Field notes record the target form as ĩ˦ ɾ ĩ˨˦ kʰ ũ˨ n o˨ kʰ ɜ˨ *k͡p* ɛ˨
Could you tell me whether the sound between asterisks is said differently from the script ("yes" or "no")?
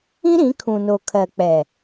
no